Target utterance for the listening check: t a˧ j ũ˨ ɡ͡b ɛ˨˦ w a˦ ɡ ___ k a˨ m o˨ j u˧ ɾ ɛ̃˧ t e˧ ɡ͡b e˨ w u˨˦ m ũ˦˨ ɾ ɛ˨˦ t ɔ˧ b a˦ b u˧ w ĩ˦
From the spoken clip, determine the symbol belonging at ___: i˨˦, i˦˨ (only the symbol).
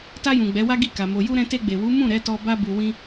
i˦˨